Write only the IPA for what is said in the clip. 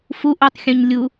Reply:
f u ʔ u tˤ xʲ ũ ɲ lʲ u

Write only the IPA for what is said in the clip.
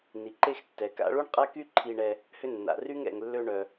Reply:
n i˩ ǃ e˥ x tː ɛ˩ k a̰˦ ɭ u˥ ɳ qʼ a˥ k y˥ ǃʰ i˦ ɳ ɛ˦ | h ʏ˦ nː a̰˩ r y˥ ŋ ɛ̰˨ ŋ lː ø˦ ɳ œ˨

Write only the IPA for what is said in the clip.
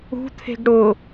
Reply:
ṳ t̪ʰ e̤ ɡ ɽ ʊ

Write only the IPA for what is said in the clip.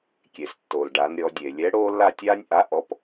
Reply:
kʲ e˩ s tː o˩ l ɖ a˩˧ n ɾʲ ɔ˩˧ dʲ e˩ lʲ ɛ˨˥ ɽ oː˦ lː a˦˨ tʲ aː˦ nʲ ʔ a˨˥ ʔ ɔ˨˥ p

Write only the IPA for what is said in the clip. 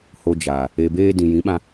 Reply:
h o˨ d͡ʒ aː˨ | e˨ b eː˧ d ĩ˨ j ĩ˨˦ ɓ ã˧

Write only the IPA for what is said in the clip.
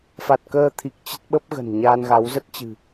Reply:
f a˨˩ t̚ k əː˧ t̪ʰ i˨˩ k̚ t͡ɕ ə˦˥ t̚ ɓ ə˦˥ p̚ ɣ ə̤˨˩ n ɲ aː˧ n ɣ a˨˦ w z ə˦˥ t̚ t͡ɕ ɨ̤˨˩

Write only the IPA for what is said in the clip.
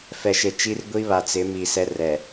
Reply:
f ɛ˨ ʃ e˨ t͡ʃ i˦ r ɡʷ i˦ β a˨ t͡s ɪ˨˦ m i˨ s ɛ˦ r ɛ˨

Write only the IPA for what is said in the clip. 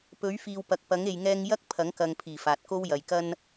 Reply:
p ɵ˨˥ ɥ f iː˨ w p ɐ˨ k̚ p ɐ˨˥ ŋ e˨ j ŋ ɛː˧ ŋ j ɐ˥ k̚ pʰ ɐ˨˥ ŋ k ɐ˨ ŋ pʰ iː˨˩ f aː˨ t̚ k o˥ w j ɐ˨ j k ɐ˥ n

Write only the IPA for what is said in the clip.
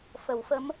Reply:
f ə˨˩˦ w f ə˧˥ m

